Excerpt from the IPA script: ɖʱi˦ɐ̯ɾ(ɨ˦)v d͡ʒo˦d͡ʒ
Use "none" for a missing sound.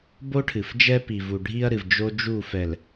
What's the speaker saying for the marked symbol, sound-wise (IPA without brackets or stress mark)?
ɨ˨